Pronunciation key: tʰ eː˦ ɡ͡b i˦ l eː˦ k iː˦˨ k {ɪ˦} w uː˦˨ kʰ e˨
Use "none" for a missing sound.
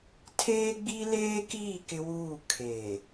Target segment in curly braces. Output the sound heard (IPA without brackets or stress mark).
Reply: ɪ˦